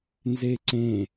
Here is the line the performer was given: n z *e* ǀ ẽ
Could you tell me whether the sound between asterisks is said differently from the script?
no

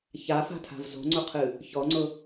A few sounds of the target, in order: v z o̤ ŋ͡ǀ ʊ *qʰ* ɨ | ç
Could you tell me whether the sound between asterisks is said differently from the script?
no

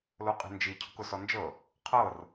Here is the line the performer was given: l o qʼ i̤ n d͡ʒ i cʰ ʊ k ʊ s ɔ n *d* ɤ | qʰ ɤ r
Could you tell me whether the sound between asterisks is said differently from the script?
yes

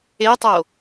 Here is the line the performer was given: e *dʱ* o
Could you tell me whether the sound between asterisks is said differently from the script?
yes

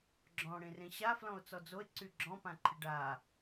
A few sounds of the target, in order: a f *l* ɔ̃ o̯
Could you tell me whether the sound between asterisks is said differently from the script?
no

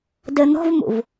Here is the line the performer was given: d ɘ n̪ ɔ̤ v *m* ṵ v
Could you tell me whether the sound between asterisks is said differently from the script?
no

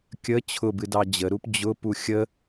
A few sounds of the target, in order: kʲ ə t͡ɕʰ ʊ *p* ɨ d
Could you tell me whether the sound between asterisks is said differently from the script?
yes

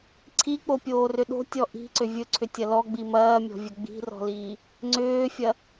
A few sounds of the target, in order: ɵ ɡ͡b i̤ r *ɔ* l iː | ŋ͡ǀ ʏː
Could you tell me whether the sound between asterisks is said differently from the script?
yes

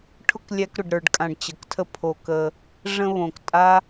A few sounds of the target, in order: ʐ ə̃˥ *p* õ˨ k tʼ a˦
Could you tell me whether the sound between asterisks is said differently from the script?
yes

